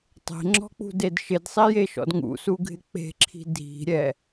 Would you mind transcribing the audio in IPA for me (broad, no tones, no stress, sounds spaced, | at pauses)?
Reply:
tˤ e̤ ŋ͡ǁ ɔ̤ k͡p ṳ d e d ʃ ɪ d sˤ i j e ʃ ɔ̰ d ŋ ṵ s u ɡʱ ɪ k͡p e̤ ǁʰ i̤ dʱ i̤ ɾʲ ɛ